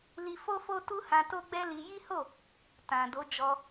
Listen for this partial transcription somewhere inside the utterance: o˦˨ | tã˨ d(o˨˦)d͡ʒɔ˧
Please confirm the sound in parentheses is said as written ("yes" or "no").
yes